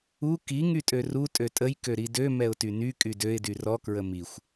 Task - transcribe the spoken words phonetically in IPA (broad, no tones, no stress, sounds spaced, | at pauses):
u k i ŋ y tʼ ø r u tʼ ø tʼ ə j k ø ɾ i d ø m ɛ ʊ̯ t y n y kʼ y d ø ɪ̯ d y r ɔ k ɹ ə m i xʷ